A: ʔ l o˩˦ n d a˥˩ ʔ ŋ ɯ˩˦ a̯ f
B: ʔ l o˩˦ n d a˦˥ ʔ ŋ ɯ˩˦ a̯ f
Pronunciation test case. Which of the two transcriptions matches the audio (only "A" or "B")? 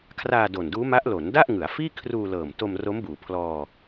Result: A